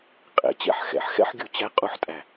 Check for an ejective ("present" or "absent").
present